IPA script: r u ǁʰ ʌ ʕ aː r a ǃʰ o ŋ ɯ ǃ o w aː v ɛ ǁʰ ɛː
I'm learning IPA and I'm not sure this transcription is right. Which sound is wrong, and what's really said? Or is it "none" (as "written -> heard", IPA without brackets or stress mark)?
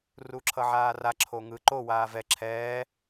ǃʰ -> ǁʰ